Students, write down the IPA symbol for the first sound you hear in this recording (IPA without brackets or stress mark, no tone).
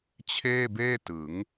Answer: t͡ɕʰ